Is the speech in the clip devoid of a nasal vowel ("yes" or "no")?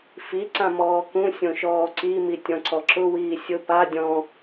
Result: no